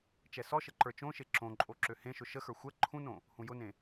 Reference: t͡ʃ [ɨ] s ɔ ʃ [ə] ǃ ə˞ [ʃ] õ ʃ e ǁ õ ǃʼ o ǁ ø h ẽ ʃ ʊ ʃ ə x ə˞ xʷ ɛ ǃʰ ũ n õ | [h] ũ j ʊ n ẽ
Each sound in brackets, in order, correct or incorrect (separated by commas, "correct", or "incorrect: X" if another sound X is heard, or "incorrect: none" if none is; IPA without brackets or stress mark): incorrect: ɛ, correct, incorrect: t͡ʃ, correct